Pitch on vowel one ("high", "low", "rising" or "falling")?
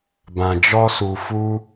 low